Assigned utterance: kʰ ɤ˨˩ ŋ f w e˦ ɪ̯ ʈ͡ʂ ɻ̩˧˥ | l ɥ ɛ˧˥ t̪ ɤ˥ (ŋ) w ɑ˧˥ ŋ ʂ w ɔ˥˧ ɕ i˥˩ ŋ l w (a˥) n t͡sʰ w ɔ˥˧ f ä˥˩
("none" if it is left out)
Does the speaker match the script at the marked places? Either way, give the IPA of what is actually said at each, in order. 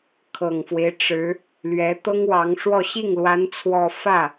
ŋ, a˧˥

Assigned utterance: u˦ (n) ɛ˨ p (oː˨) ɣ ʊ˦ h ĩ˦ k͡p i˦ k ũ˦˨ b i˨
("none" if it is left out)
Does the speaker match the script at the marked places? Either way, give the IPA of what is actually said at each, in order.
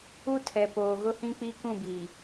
tʰ, oː˨

